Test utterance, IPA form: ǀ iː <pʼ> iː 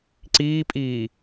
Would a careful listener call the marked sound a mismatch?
no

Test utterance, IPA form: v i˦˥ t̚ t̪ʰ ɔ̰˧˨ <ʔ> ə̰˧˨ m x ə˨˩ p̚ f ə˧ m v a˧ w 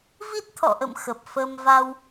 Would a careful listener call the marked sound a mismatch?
no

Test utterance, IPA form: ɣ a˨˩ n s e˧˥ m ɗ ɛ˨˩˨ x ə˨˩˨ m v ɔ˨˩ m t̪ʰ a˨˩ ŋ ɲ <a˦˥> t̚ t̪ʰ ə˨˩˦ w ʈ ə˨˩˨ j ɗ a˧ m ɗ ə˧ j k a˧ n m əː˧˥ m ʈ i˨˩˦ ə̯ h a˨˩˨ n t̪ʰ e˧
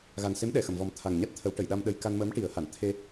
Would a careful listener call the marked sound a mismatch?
no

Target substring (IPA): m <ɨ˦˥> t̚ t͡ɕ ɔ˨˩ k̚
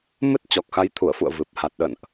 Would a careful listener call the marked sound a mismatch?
no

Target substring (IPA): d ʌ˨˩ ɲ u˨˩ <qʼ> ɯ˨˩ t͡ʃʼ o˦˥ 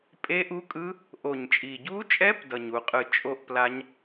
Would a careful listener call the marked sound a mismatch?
no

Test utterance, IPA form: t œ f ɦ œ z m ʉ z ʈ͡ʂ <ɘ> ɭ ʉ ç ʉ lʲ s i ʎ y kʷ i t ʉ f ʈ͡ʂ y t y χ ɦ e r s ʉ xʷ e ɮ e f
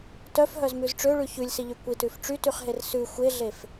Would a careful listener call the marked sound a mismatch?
yes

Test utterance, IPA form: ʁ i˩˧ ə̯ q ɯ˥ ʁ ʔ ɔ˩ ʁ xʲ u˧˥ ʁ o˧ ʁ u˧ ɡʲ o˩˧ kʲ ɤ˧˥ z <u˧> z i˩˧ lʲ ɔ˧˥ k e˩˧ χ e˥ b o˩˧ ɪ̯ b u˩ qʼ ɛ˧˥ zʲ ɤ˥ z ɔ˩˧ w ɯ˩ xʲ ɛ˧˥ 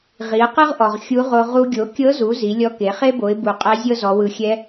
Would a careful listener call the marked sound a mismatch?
yes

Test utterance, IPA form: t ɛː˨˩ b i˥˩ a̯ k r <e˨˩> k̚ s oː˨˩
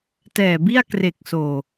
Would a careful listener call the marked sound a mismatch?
no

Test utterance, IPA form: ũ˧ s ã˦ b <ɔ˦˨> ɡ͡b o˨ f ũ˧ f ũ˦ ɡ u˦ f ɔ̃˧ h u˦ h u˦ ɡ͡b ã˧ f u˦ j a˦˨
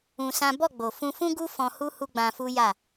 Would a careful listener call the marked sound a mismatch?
no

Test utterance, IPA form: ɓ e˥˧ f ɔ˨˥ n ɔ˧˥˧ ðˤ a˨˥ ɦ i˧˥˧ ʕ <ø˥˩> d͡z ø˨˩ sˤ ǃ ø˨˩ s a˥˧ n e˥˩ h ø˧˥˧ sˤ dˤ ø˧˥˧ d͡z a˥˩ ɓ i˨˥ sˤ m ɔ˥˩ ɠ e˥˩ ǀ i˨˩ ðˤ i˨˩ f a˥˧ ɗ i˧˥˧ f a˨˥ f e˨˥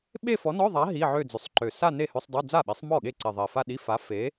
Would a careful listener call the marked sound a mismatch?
yes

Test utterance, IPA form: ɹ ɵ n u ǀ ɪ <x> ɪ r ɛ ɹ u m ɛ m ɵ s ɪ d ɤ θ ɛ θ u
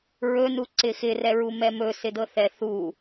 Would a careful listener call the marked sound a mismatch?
no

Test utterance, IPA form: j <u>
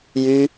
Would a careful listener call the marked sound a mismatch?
yes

